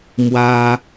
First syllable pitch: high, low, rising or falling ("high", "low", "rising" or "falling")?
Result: high